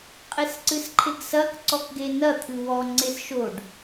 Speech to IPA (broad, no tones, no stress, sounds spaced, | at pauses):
qʼ e s ǀ ɨ s ǃʰ e ɡ s ɐ k ǀ ɔ k ɡ e n ɐ t̪ʰ ɨ w ɔ ŋ͡ǀ e s ʃ o ɖ